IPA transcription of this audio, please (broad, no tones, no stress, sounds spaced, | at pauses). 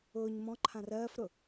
ʊː ɲ m ɔ̃ ǃʰ ã r ɜː f ɾ ʊ